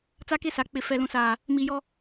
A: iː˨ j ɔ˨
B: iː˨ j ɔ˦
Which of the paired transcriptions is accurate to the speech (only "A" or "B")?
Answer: B